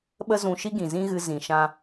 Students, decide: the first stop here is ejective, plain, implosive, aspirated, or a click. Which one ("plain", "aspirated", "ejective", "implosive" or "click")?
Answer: implosive